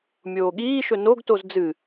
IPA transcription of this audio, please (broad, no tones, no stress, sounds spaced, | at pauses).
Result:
mʲ oː ɠ iː ʃ ɵ n o ɡ t o z d͡z ɨ